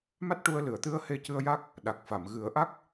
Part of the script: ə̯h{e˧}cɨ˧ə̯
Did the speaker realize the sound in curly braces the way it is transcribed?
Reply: yes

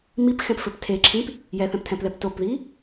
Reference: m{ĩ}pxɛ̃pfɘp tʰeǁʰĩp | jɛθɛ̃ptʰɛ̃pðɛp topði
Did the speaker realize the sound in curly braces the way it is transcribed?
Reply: no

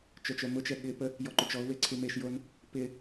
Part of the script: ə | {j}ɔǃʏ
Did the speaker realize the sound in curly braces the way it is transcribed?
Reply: yes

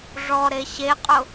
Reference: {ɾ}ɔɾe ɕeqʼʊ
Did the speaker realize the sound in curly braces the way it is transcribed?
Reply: no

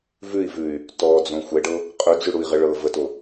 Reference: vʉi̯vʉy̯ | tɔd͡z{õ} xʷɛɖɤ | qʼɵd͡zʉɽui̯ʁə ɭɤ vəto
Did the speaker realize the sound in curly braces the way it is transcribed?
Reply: yes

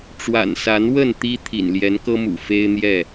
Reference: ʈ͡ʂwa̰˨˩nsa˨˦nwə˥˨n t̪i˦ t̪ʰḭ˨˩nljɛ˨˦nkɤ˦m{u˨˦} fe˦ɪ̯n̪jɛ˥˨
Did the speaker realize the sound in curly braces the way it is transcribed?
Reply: no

